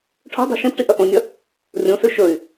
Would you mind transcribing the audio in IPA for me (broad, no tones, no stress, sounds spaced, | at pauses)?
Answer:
ʈʰ o̤ dˤ o̤ ʃ ĩ p ʈ i ʔ ɐ ʔ õ nʲ ɐ | rʲ õ s ʉ ʃ ɵ y̯